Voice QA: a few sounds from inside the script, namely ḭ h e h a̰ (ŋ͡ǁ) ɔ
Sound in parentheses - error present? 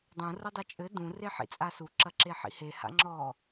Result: no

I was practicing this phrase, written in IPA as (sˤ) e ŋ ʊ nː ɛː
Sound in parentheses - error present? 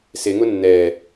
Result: yes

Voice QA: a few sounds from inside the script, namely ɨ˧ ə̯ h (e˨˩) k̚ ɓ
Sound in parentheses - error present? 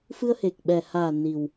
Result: no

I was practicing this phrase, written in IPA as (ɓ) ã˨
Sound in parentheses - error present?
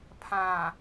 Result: yes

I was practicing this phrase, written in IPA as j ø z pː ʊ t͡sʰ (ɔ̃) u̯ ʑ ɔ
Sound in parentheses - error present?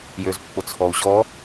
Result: yes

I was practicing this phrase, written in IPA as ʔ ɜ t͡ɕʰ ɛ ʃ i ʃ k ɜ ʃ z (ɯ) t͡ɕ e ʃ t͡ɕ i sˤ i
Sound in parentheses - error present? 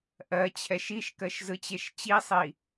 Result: no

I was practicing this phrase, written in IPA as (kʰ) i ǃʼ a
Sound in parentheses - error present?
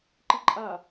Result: yes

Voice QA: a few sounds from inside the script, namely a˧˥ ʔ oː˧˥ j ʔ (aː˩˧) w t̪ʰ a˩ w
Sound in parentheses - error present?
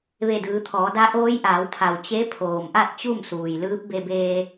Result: no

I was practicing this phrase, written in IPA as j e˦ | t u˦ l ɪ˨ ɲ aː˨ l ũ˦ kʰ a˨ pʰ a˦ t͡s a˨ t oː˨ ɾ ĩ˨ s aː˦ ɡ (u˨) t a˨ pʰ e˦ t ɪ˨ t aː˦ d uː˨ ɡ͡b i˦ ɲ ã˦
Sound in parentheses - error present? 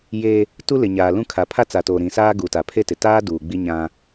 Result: no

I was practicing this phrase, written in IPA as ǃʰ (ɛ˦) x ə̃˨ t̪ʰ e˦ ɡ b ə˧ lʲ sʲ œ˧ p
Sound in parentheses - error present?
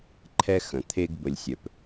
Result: no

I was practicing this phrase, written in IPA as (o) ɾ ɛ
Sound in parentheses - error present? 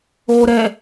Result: yes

